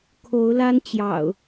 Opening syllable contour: rising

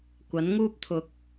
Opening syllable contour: rising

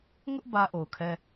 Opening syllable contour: high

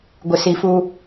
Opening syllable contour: low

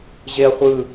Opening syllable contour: high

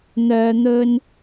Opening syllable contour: low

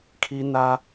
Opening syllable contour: high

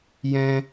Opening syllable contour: high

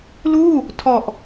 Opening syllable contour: falling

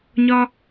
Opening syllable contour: high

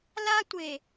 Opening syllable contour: high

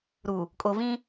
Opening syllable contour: low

